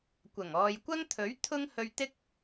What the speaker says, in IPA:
kʷɐ˨˩ŋɔː˨jkʷɐ˥ŋt̪ʰɵ˨˥ɥ t̪ʰʊ˥ŋ hɵ˧ɥt̪ɪ˥k̚

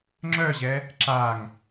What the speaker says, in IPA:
ŋ͡ǁœʑɛ | ǁaŋ

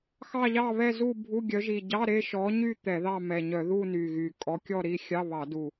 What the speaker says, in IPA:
xɑ˥˧ʎɑ˥˧βɛ˥˧ zu˥˧ bʱu˧˥˧ɡʲœ˨˦ʒi˨˩ ɟɑ˧˥˧ɾe˥˧ʃɔ˨˦ɲy˥˧ t̪ɛ˧˩˧ðɑ˥˧mɛ˨˩ɲœ˧˩˧ ðu˥˧ ny˨˩ɣy˨˩ kʼɔ˨˦kʲɔ˥˧ɾi˥˧ xʲɑ˧˥˧ βɑ˧˩˧du˨˩

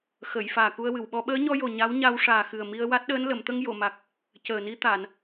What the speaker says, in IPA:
xə˨˩˨j faː˨˩ku˧ə̯wɨ˨˩˨wɓɔ˧˥ ɓəː˧˥ɲɔ˧jo˨˩ ɲa˧˥wɲa˧w ʂaː˨˩xɨ˨˩ə̯ mi˧ə̯wa˦˥t̚ɗəː˧˥n lə˨˩˨mt̪ə˧ŋ jo˨˩˨ma˨˩k̚ | cəː˨˩ni˧t̪a˨˩˨n

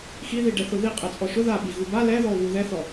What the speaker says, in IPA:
xiði ɖɛθʊði qʼɛt͡sʼɔʃʊ ðaɓi ɣuba lɛðɔo̯βu ðɛθɔ

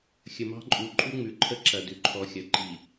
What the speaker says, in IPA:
xʲə˨mɑ̤˦ǃʼu˨ ǃʼu˦ŋ͡mʉ˨ǃʰə˦ ǁɐ˨ dʉ˨ ǃʰɔ˨xʲɐ˨ǃi˨

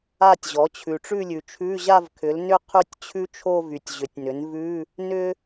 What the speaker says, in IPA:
a˥˧tʲʑɔ˩˥t͡ɕʰʉ˨ ʈ͡ʂʉ˥˧lʲʉ˨ t͡ʃʰʉ˧˥˧ʑa˥˧vkʰʏ˩˥lnʏ˥˧ qʰʉ˥˧tʲt͡ɕʰʉ˥t͡ʃʰo˥˧ vy˨tʲʑʏ˩˥tʲnʏ˩˥n vʉ˧˥˧ | nʏ˥

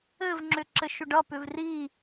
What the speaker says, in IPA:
ɘvŋ͡ǁʏǁɘʃʏ ɖʌpʏv ri

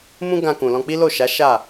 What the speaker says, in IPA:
mũ˦ɡã˧kũ˨ lɔ̃˧k͡pi˦lo˦˨ʃa˨˦ ʃa˦˨

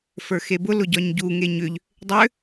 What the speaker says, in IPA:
fə˞xebʊ lʊɟɒɲɟu ŋeɲʏʎ | dˤʏ

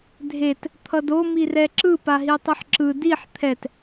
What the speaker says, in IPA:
dʱet | t̪ʰʌdo mirɛǁɯ paɦitˤɯħǁɯ diħ t̪ʰɛt

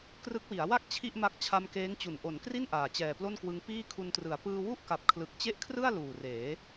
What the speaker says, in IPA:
krɯ˦˥k̚wi˩˦a̯ wa˥˩k̚ t͡ɕʰi˥˩ʔma˦˥k̚ t͡ɕʰa˧mkeː˦˥ŋt͡ɕu˨˩n ʔo˩˦n kri˥˩n ʔaː˨˩t͡ɕɛː˨˩plo˥˩nkwɯ˦˥ŋ piː˥˩kʰu˧ntrɯ˨˩a̯ pɯː˧wu˥˩ʔ ka˨˩p̚kʰlɯ˨˩k̚ t͡ɕe˥˩ʔkʰrɯ˥˩a̯ luː˨˩reː˩˦

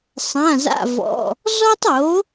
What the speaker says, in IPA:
sˤã˧˥˧za̰˥˧vɔ̰˧˥˧ | zɔ˥tˤo˨˥

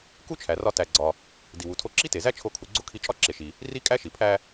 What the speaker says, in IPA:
ku˥t͡ʃʰæ˩rɒ˧ tæ˩ɡ͡ǀɒ˩ | di˩wu˩tʰo˧ǁi˥ te˩zæ˥ t͡ʃʰo˧kʰu˩ɡ͡ǀo˥kʰi˧ t͡ʃʼɒ˥ǁe˩ʃi˩ | ri˥ kʼæ˥ʃi˩ pʰæ˧

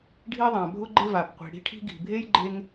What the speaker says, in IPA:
ɖʱi˥ðˤã˩ bʱʊ˥ɡ͡ǃɪ˥ va˩pqʷi̤˩ ɽi̤˥ʈʰi̤˥ɡi̤˩ bʱe˥j ɡ͡ǃe˥ŋ

